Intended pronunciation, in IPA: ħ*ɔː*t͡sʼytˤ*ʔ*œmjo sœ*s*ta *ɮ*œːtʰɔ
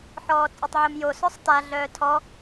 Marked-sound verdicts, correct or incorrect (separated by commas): correct, incorrect, incorrect, correct